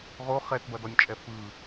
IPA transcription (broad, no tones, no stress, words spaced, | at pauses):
ʁo χɛtbɐdɔnʲt͡ʃʼɛ fɯ